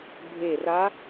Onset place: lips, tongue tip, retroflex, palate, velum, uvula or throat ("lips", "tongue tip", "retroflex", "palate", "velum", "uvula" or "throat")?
lips